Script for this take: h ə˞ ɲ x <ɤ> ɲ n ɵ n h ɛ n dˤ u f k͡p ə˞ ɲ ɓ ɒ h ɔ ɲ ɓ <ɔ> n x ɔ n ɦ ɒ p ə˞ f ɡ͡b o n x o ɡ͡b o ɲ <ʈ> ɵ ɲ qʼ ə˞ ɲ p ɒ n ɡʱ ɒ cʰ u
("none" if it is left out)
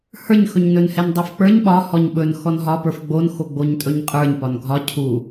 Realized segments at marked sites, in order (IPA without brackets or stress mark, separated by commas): ɵ, ɵ, tʼ